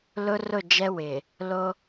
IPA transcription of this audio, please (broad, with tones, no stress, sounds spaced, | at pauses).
l ʊ˦ r ʊ˦˨ d͡ʒ ɛ˦ w ɪ˨ | l o˦